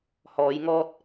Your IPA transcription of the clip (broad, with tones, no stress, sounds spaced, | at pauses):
h ɔː˨˧ j ŋ ɔː˧ t̚